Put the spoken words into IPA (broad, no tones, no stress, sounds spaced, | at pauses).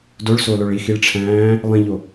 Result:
d o ɭ s o l o ɭ i x i ɭ ʈ͡ʂʰ æ̃ː | lˠ ĩ ʎ o